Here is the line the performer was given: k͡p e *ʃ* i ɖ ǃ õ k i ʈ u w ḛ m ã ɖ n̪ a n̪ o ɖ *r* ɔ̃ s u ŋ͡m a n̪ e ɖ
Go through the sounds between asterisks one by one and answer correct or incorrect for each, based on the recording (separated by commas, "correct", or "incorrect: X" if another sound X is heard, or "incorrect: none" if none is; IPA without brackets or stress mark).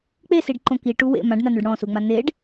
incorrect: s, incorrect: ɽ